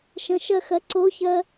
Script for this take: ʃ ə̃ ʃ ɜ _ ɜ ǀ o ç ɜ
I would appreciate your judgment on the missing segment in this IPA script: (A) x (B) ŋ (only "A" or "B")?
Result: A